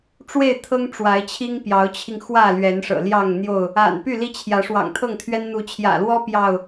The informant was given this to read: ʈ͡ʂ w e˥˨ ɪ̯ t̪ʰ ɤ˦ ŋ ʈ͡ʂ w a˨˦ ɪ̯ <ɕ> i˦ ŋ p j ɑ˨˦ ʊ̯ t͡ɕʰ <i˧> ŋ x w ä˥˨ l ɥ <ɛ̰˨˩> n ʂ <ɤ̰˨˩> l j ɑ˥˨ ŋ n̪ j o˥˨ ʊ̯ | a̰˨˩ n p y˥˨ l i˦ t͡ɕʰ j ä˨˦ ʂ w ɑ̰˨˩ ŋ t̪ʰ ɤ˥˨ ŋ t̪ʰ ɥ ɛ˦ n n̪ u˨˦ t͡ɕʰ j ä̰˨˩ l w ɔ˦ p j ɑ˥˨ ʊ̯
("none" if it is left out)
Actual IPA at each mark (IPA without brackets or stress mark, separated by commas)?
t͡ɕʰ, i˧, ɛ˨˦, ɤ̰˨˩